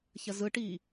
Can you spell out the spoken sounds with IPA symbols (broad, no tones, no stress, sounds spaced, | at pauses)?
ç ɐ z ɯ ʈ i